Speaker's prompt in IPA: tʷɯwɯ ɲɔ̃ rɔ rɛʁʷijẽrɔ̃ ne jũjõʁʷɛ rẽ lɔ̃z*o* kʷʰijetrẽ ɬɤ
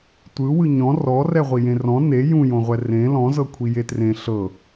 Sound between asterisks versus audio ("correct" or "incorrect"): incorrect